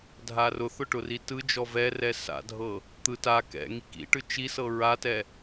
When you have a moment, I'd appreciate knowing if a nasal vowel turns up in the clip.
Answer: no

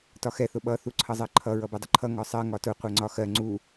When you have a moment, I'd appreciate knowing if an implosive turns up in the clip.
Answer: yes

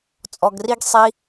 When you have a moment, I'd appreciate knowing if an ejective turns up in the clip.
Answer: yes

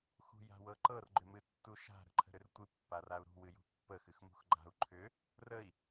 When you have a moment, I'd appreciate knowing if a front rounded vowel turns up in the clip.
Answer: yes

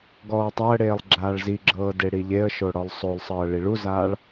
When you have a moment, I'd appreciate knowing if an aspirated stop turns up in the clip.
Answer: no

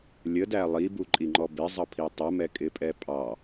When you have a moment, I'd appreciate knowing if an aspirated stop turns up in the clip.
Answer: yes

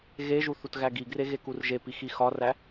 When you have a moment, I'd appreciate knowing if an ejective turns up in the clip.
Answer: no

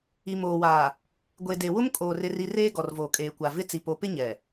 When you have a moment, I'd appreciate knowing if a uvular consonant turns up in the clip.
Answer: no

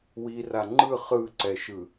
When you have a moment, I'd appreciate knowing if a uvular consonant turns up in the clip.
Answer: yes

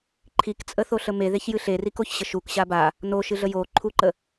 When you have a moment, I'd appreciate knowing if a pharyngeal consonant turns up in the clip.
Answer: no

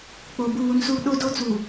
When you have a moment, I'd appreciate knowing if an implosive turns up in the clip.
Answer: yes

